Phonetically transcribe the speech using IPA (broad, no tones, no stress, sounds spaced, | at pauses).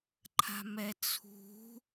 ǃʰ a̤ m ɛ t͡sʰ ṳ